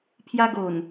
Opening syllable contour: high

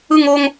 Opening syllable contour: falling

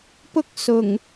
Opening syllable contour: high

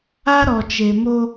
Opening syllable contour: high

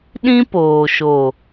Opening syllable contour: high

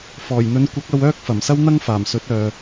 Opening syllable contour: low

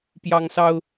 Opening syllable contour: high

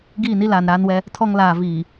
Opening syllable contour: falling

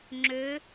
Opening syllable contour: rising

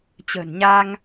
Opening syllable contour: low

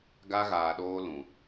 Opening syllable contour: high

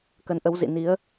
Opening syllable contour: rising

